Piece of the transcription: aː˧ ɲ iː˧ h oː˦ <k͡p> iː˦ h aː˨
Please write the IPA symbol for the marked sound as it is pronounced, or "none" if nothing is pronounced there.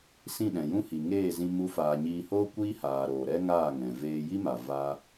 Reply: kʷ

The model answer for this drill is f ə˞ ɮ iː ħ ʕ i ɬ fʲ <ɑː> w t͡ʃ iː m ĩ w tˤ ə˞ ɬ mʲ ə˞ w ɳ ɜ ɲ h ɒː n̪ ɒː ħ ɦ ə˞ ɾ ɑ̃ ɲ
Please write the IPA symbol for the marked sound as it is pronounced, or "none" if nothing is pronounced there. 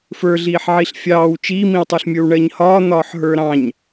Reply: ɑː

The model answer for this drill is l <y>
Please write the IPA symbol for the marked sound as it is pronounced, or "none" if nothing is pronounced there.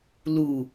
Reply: u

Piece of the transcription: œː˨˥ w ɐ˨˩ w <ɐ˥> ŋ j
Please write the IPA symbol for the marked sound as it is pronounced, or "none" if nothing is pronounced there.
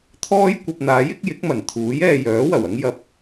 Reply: ɐ˥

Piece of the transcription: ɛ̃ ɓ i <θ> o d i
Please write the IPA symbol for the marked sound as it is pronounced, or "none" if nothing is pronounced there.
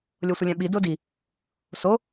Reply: d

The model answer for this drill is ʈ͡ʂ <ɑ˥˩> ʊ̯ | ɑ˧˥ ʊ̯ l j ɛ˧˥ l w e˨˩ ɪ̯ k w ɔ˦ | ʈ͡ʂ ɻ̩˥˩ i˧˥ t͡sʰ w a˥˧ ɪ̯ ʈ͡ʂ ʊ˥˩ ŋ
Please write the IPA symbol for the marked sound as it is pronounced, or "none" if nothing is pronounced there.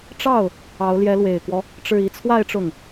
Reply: ɑ˥˩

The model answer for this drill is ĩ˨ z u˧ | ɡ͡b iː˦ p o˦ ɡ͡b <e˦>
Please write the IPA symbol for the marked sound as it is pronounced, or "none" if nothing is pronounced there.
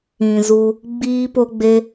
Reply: e˦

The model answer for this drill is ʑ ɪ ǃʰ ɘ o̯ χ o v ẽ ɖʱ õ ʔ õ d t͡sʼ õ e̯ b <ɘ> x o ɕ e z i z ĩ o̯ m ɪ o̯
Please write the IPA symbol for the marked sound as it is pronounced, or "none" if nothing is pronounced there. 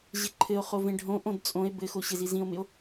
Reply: ɘ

